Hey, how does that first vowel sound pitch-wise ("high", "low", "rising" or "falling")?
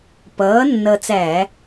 rising